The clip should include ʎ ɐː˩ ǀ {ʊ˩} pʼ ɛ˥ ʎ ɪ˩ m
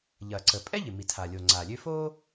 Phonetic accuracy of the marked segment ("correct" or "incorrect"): incorrect